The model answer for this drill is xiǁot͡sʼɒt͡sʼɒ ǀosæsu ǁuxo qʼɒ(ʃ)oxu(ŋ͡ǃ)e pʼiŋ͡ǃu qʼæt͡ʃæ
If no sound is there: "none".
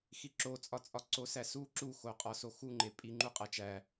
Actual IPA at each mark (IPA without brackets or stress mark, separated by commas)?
s, ŋ͡ǃ